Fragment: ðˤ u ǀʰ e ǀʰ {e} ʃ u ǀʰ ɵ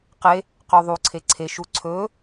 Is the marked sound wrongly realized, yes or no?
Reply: no